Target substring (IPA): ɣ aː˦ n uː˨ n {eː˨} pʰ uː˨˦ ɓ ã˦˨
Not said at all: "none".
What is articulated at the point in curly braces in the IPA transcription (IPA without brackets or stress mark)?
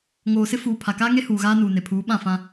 e˨